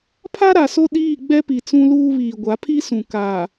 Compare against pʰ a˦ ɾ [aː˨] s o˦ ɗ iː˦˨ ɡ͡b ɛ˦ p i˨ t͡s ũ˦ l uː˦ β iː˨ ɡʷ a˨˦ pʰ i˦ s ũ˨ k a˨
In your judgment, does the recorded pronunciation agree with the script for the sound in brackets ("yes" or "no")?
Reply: no